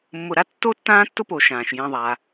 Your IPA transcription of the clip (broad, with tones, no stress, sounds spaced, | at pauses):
mː ʊ˨ ɾ a˦ tː o˥ tː ãː˥ tː ʊ˥ p o˨ ʃ ãː˩ ʃ j ẽ˨ ðˤ a˩